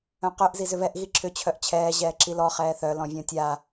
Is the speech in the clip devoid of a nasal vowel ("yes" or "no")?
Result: no